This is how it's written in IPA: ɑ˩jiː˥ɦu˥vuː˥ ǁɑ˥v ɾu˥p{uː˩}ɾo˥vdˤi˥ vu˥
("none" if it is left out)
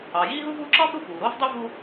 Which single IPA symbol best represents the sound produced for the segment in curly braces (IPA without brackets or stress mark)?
uː˩